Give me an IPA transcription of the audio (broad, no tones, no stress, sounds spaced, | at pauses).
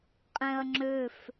qʼ ɛ̃ ɐ̯ ŋ͡ǁ ø f